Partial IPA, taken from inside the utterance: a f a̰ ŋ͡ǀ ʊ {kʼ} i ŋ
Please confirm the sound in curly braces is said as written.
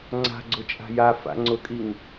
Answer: yes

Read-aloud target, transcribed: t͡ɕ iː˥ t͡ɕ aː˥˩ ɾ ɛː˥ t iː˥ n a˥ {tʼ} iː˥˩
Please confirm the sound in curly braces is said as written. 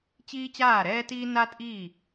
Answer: yes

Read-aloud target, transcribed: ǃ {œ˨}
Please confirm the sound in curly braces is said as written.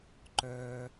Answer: yes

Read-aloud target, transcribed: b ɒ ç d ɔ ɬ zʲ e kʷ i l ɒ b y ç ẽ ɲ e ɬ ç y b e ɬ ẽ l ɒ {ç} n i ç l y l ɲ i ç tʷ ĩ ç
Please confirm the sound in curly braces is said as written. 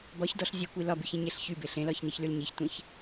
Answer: yes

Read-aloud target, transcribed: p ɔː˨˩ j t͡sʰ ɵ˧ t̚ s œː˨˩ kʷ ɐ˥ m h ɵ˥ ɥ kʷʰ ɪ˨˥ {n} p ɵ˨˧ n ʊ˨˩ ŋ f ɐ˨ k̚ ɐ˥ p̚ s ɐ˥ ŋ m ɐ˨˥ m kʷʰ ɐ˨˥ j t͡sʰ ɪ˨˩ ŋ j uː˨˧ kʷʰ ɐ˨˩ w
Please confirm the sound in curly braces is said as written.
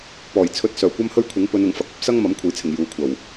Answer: no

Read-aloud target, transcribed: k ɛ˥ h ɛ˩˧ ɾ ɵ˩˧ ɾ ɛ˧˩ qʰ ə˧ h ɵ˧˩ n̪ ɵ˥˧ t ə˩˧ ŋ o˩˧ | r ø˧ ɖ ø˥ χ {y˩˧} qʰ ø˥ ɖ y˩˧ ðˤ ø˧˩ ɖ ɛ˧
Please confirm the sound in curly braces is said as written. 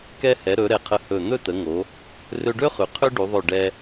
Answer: yes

